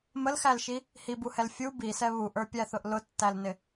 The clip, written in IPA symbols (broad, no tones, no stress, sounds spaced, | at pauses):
m ə l x æ l ʃ i | h i b u h ɛ l fʲ u b i s ɛ β u ʔ ə˞ pʲ æ θ ʊ ʔ l ʊ tː æ l n ɪ